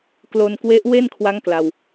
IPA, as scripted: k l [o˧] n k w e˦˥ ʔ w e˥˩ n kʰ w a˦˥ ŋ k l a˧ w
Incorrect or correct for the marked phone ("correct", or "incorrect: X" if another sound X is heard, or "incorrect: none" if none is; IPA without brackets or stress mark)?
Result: correct